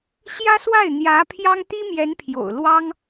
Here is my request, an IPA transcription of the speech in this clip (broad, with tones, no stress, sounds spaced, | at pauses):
ɕ j ä˥ s w a˥˩ ɪ̯ n̪ j ä˧˥ pʰ j ɑ˥ ŋ t̪ i˥ m j ɛ˧˥ n pʰ j o̰˨˩ ʊ̯ l w ɑ˥ ŋ